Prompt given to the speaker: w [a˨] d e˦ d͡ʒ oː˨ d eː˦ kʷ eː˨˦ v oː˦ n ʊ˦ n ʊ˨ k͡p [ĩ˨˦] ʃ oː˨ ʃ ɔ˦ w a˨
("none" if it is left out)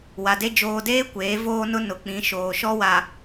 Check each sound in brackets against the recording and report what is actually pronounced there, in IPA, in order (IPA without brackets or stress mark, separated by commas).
a˨, ĩ˨˦